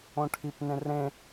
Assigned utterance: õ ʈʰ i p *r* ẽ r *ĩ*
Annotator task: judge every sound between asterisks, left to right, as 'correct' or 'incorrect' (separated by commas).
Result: incorrect, incorrect